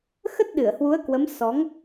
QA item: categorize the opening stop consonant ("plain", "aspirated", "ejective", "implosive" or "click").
plain